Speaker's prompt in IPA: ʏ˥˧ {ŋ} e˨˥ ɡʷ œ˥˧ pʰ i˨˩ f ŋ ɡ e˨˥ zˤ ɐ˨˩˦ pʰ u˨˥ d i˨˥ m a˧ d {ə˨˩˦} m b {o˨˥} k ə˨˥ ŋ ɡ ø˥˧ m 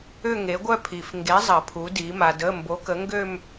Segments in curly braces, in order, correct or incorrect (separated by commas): correct, incorrect, correct